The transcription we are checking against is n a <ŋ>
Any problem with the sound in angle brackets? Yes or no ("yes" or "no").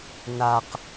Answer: yes